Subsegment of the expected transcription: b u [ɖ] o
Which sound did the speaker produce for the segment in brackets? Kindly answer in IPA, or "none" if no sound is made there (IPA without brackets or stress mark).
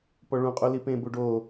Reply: ɖ